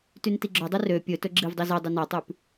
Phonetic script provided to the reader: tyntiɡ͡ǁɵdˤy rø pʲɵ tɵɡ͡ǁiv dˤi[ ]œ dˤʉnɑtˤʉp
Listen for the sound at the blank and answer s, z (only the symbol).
z